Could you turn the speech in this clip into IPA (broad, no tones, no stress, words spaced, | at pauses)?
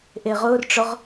ʔeʁʊrʈ͡ʂʊʁ